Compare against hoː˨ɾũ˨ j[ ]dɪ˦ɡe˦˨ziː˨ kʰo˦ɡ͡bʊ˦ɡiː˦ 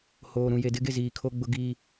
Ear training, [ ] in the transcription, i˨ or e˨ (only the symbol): e˨